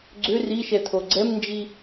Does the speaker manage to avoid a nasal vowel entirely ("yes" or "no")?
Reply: yes